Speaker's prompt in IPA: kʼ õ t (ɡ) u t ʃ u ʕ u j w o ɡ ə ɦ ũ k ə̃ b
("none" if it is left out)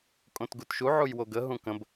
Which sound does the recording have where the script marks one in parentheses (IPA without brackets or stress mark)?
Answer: ɡ